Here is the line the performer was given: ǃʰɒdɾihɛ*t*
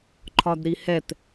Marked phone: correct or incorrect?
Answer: correct